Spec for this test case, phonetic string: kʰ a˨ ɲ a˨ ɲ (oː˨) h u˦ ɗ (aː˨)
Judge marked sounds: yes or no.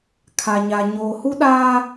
yes, no

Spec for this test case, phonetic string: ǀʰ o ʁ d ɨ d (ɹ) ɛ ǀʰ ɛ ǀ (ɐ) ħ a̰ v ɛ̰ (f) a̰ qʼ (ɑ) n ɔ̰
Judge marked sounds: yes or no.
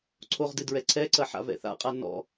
yes, yes, no, no

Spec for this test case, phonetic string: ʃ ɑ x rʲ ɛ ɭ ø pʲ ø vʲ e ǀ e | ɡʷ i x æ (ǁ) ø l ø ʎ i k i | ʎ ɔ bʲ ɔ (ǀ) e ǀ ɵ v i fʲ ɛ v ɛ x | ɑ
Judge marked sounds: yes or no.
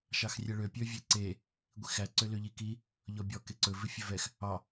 no, no

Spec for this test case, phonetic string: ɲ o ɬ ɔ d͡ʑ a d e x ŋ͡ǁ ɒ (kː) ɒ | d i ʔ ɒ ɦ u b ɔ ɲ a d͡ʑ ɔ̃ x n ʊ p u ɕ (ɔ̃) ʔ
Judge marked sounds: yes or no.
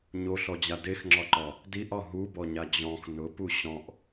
no, yes

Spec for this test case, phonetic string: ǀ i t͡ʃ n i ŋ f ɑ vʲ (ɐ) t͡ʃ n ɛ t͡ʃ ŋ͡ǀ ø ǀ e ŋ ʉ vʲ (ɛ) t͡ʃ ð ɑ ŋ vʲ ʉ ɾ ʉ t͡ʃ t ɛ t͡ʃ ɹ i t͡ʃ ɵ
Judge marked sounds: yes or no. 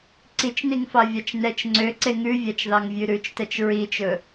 no, no

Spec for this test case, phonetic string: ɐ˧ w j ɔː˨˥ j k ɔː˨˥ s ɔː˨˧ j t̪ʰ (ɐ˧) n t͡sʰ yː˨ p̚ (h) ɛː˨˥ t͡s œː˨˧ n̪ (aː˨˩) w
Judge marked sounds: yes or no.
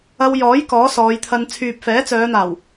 yes, no, yes

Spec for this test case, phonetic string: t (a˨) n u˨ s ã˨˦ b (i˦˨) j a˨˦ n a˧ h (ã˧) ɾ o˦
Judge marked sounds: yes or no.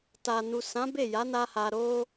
yes, no, no

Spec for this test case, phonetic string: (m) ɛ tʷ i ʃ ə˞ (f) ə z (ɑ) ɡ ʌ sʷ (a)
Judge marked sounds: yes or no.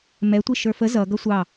yes, yes, no, no

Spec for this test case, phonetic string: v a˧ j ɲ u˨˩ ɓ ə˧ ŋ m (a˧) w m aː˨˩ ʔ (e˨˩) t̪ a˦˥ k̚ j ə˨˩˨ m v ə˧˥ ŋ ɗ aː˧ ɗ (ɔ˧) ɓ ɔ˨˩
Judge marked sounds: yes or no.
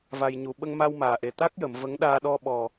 yes, yes, yes

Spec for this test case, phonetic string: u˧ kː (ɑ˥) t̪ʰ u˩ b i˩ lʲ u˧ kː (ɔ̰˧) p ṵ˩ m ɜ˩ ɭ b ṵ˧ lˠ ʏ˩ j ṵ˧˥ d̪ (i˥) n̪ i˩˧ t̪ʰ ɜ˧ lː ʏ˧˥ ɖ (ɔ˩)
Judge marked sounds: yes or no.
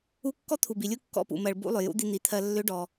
no, yes, no, yes

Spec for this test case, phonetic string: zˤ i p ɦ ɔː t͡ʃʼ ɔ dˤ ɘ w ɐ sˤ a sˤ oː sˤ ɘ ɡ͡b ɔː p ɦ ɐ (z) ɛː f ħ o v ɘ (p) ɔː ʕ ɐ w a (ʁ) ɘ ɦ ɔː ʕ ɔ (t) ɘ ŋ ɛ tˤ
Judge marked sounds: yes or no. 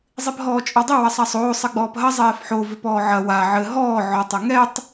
no, yes, no, no

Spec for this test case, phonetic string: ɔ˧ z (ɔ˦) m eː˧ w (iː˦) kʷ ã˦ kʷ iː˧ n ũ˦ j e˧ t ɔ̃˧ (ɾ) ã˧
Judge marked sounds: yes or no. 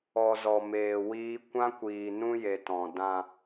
no, yes, no

